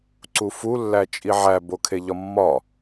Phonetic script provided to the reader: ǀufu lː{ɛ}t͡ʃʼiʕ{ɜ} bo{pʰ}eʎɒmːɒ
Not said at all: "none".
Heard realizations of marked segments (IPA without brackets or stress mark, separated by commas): æ, æ, kʰ